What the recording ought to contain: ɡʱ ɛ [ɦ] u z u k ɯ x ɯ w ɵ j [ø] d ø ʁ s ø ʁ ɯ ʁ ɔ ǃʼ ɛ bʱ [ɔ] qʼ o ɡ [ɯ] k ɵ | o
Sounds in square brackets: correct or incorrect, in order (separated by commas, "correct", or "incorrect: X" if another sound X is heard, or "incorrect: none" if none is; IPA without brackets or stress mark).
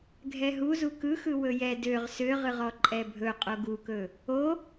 correct, incorrect: ɛ, incorrect: ɵ, incorrect: u